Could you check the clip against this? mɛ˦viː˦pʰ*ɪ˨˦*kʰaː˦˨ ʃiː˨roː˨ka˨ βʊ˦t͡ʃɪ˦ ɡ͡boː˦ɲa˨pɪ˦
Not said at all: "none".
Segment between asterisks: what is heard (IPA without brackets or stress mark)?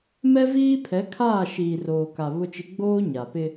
ɛ˨˦